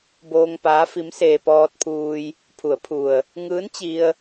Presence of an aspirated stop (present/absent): present